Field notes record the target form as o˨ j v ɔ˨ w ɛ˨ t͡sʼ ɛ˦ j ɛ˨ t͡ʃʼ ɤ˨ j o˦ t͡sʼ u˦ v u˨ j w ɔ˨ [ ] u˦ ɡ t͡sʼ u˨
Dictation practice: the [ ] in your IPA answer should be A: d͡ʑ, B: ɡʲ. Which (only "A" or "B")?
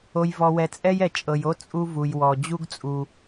A